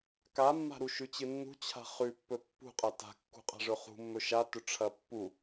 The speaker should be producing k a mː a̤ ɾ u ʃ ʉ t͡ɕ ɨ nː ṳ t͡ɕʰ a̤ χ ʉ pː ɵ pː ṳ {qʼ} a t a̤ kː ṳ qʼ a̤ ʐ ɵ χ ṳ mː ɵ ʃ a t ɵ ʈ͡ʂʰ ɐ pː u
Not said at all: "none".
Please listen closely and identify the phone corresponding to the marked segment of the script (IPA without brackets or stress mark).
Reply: qʼ